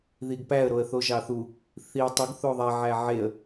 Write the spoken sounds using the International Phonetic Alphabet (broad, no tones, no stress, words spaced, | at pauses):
ðiɡpæə̯ ɾoə̯θoʒɑθu | θiə̯ tˤuɡ θoðˤɛ ʕæʕeə̯